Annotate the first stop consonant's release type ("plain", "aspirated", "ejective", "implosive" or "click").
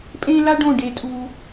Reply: ejective